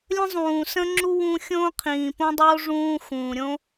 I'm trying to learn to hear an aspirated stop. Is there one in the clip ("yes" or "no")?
yes